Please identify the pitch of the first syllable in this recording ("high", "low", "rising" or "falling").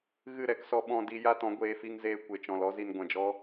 falling